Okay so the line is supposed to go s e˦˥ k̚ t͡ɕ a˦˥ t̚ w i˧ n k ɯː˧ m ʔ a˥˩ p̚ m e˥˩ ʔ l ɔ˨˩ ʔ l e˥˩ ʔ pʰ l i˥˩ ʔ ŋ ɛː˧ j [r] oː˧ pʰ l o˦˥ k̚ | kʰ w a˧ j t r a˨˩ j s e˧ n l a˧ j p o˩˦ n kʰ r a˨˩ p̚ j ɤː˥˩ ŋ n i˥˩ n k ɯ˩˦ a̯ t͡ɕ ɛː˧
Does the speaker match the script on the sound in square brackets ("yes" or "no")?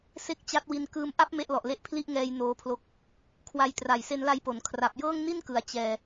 no